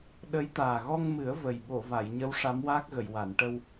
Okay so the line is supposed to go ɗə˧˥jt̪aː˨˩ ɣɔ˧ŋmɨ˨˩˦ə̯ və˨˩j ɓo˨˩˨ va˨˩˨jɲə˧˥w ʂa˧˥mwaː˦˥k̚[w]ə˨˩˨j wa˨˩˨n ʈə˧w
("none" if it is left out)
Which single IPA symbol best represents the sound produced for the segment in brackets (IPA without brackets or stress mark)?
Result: ɣ